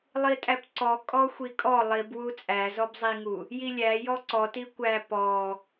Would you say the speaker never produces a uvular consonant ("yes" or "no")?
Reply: yes